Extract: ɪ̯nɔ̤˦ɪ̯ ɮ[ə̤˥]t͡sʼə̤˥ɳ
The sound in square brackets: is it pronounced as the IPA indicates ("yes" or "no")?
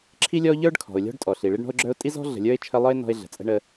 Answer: no